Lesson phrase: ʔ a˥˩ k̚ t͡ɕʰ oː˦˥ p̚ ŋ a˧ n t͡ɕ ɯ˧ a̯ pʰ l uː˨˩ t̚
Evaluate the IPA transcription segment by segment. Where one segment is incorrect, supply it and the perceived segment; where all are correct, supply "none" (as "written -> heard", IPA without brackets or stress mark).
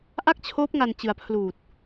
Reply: none